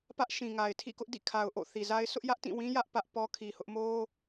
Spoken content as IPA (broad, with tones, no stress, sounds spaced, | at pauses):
p ä˦ ʔ ʃ ĩ˨ ŋ a˨ ɪ̯ tʰ ḭ˦˨ k ʊ˦ ʔ d ḭ˦˨ kʰ a˨ ʊ̯ ʔ o̰˦˨ θ i˨ z a˦ ɪ̯ sʰ ʊ˦ ʔ j ä˦ ʔ t ĩ˦˨ w ĩ˦ j ä˦ ʔ p ä˦ ʔ p ɔ˦ kʰ i˨ h ʊ˦ ʔ m o˦